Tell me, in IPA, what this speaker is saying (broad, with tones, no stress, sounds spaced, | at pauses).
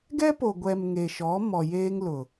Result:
ɡ ɛ˦ p o˨ ɡʷ ɛ˨ m ŋ e˨ ʃ ɔ˨˦ m ɔ˨ j eː˦ ŋ l ʊ˨